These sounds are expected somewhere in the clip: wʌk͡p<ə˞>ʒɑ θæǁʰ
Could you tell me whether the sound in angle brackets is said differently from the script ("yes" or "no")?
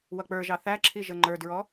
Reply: no